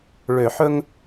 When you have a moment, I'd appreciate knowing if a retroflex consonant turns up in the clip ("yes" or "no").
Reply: yes